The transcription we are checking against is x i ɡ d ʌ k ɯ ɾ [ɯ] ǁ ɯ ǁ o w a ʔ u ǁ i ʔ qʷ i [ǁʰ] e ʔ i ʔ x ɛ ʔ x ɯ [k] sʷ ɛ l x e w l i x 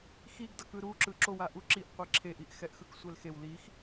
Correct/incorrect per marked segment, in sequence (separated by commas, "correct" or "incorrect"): incorrect, correct, correct